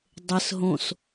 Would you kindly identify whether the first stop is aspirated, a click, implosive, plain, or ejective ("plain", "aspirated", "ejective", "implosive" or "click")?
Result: plain